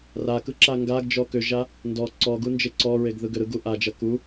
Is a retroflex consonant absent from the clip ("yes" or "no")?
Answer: yes